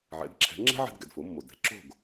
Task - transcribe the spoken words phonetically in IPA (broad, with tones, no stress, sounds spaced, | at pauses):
ʕ ɛ̰˩˥ d ǁʰ ɛ̤˩˥ ŋ͡ǁ ɛ̤˥ ʕ ɛ̤˧ d ɡ ɛ̰˩ d f o˩˥ mː o˩ d ɛ̤˩˥ ǁ o̤˥˩ ɡ